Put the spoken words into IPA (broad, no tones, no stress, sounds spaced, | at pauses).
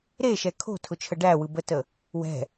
ɾ e ʃ ɛ kʰ o̤ tʰ ʊ t͡ʃʰ ə ɖ æ w ɯ b ə t ə | w ɛ̤